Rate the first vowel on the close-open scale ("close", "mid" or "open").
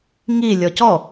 close